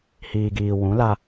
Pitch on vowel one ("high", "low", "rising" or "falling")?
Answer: low